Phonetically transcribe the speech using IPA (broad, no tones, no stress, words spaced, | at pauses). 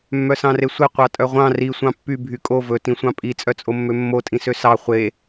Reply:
mːœsɑ̃resʷe qʷɑtʼœʁʷɑ̃ ri sʷɑ̃pːy bʱykʼo vɵ tĩsʷɑ̃pʼi t͡sʼœt͡sʼomːømːo tʼĩsøsɑ χʷe